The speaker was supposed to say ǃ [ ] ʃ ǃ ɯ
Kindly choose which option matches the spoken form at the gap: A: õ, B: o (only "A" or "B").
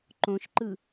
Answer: A